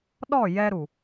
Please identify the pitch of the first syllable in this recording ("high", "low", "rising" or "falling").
falling